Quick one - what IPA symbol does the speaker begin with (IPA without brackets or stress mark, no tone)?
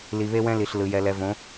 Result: l